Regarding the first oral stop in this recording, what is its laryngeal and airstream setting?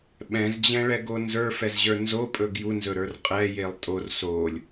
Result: implosive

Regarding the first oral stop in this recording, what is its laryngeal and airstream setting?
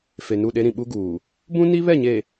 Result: implosive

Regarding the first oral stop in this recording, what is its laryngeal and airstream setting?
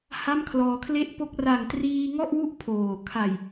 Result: aspirated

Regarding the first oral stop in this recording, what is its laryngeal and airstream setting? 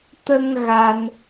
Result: plain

